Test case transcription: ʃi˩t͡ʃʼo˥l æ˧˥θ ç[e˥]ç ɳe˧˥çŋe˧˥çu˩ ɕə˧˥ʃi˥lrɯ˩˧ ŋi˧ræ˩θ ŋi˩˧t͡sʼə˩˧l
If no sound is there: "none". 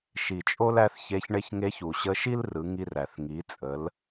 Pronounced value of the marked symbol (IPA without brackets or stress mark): e˧˥